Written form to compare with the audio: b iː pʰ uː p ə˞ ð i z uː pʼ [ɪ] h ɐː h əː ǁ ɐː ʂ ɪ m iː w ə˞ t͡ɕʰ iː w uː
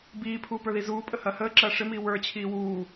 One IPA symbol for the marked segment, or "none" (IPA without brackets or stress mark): ə